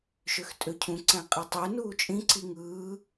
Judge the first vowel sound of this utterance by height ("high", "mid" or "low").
mid